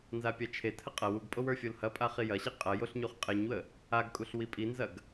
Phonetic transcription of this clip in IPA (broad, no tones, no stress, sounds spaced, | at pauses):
n z a pʲ a t͡ʃʰ e tʰ ə qʼ ɐ w u ɡ pʼ o w ə˞ fʲ o l h ɐ pʼ a χ i j ɐ ɕ i qʼ ɐ j o ɬ ɲ u χ qʼ e ɲ w ə | a ɡ kʼ u ɬ w i pʼ i n z ɐ ɡ